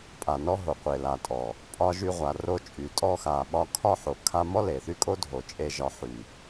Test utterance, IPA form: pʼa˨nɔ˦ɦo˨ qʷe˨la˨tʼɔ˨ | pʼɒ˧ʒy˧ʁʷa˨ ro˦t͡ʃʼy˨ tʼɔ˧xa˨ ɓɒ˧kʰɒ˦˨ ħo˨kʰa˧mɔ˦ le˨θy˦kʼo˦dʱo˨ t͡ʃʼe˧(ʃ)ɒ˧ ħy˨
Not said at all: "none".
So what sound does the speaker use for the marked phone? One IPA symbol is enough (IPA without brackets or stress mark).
ʒ